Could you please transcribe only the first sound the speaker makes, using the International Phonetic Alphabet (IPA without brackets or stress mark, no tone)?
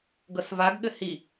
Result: ɡ